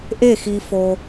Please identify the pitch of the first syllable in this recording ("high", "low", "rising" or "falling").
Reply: falling